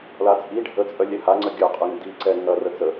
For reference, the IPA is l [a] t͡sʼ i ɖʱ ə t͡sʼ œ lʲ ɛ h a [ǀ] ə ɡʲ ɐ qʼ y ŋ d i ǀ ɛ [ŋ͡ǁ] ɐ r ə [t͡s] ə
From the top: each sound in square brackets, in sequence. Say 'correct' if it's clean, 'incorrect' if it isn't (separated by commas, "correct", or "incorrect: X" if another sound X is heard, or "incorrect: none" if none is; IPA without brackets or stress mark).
correct, incorrect: ŋ͡ǀ, incorrect: ŋ, correct